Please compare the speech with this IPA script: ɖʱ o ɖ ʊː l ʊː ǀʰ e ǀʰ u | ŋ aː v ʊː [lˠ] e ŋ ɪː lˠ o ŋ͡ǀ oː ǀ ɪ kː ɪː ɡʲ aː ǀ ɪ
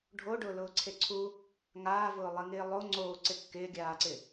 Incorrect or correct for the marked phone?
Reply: correct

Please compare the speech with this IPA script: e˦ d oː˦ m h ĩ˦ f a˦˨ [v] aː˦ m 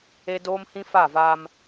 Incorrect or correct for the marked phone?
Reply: correct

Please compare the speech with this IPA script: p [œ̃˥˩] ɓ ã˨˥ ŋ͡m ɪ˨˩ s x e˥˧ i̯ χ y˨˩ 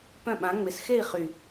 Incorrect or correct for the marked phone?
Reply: correct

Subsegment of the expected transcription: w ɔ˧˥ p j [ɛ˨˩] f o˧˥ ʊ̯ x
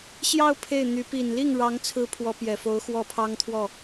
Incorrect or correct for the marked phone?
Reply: correct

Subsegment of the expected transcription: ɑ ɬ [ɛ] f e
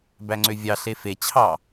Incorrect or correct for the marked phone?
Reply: incorrect: e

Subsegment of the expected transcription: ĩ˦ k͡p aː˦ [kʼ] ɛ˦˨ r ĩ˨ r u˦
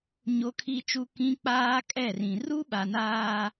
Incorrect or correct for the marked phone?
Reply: correct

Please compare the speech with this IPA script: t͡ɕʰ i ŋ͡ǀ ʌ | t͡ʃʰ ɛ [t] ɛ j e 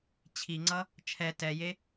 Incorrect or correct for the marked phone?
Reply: correct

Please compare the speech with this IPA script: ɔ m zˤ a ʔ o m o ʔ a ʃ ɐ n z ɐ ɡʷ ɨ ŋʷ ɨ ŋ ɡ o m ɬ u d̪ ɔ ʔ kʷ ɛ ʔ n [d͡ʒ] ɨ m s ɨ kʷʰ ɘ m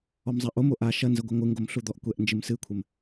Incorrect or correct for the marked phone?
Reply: correct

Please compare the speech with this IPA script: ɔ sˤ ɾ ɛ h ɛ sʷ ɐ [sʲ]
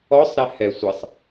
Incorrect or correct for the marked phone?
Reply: incorrect: sˤ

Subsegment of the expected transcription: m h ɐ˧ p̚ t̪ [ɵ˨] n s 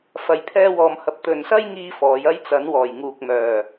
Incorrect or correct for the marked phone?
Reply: correct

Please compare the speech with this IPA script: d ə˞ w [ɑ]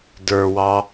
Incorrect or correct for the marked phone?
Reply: correct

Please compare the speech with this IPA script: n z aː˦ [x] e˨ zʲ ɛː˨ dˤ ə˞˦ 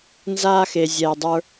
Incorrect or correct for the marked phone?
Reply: correct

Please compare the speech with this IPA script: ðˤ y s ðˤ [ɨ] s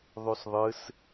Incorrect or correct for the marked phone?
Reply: correct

